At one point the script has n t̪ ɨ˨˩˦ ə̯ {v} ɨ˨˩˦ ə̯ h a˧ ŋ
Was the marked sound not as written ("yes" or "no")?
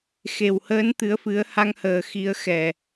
yes